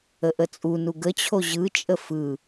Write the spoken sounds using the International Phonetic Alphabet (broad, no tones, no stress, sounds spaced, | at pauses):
ə ʔ ə t͡sʼ u n u ɡ ə t͡ɕʰ o ʑ ɯ t͡ʃʼ ə f ɯ